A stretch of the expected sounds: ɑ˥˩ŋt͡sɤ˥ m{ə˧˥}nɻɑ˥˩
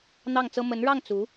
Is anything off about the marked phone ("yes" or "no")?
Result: no